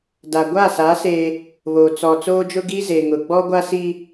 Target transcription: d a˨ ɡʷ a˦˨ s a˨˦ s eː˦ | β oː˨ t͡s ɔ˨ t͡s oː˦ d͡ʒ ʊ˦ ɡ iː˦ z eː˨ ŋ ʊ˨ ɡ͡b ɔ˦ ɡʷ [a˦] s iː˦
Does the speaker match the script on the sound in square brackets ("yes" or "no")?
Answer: yes